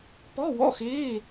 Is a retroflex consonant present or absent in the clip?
absent